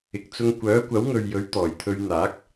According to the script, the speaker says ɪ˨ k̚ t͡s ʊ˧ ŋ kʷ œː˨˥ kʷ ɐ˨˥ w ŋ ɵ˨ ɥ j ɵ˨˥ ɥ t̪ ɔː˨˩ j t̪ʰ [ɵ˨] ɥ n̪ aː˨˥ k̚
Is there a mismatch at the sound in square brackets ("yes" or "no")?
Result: yes